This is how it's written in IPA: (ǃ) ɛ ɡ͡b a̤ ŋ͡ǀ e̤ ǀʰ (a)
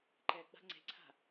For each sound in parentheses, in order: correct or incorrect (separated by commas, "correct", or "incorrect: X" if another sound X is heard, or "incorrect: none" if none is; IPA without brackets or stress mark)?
correct, incorrect: a̤